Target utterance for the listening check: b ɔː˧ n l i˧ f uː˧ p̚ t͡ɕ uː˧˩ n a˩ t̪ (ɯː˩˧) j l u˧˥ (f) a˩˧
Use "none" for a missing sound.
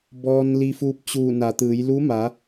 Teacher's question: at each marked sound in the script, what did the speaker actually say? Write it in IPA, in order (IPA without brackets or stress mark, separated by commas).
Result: ɯː˩˧, m